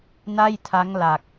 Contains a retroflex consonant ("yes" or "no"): no